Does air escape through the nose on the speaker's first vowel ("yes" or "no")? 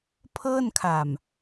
no